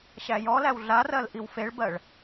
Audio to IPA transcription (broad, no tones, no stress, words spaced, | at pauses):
ɕæjɔlæw ɮarɜl ʔiwfeɭbɜɭ